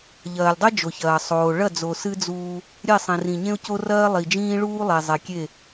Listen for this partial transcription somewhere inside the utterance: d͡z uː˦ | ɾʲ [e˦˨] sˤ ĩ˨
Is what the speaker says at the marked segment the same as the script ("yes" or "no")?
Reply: yes